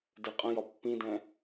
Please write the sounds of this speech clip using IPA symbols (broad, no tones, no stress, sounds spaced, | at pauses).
d ɛ qʼ ə̃ j ɒ pː ĩ d ɛ̃